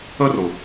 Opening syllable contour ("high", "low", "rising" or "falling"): high